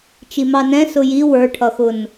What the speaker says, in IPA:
t͡ʃ i m ɑ n ɛ̃ s ʊ j i w ə˞ ʈʰ ʌ x ʊ n

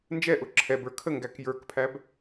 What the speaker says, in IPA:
n d͡ʒ ɛ ʔ ʊ ǁʰ ɛ b ə˞ kʰ ə ŋ ɡ æ k j ə˞ k pʰ æ b

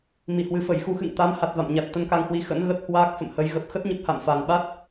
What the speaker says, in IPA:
m i˧˩ h w ɨ˨˩ f ə˧˩ j x u˧ x ɨ̰˧˨ ŋ t̪ a˨˦ m h a˨˩ t̚ v a̰˧˨ m ɲ a˨˩ t̚ t̪ ə˧ n k a˧ ŋ h w i˨˦ x ə̰˧˥ n ɣ ə˦˥ t̚ h w aː˦˥ k̚ f ə̰˧˨ m h ə˨˦ j ɣ ə˨˩ p̚ x ə˦˥ t̚ ɲ ə˦˥ p̚ h a̰˧˨ m f a˨˩ n ɓ a˦˥ t̚

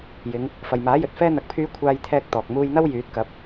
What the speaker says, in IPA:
j ɪ˨˧ ŋ | f ɐ˨ j m aː˨˥ j ɵ˨ t̚ f ɛː˥ n̪ ɐ˧ k̚ pʰ yː˥ kʷʰ aː˥ j t̪ʰ ɛː˥ k̚ t̪ ɔː˨ k̚ m uː˧ j n̪ ɐ˥ w j yː˨˥ t̚ k ɐ˨˥ p̚

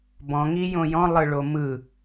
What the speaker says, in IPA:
b ɔ̃ ŋ i j õ j ɔ̃ lˠ ɯ ɭ o m ɯ

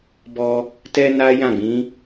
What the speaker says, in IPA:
b ɔ˧ | t ɛ˧ n a˦ j ã˦˨ ɡ͡b ĩ˨˦

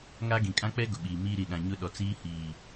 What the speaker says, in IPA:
ŋ a˦ ɡ ĩ˨ kʼ ã˦ k͡p ɛ˦ ɡ ʊ˨ ɓ iː˨ m iː˦ ɾ i˨ ɗ ã˨ ɲ ʊ˦ ɗ ɔ˨ t͡s iː˦ h iː˨

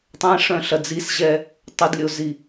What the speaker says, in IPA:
tˤ ɛ̃ ʂ œ̃ ɬ ɐ d͡z i s ʑ ɛ | tˤ ʊ d lʲ o z i

